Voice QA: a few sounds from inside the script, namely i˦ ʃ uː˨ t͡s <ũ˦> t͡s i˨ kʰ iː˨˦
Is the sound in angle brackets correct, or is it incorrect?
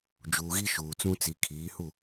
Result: correct